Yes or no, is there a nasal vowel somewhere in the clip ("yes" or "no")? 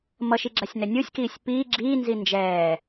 no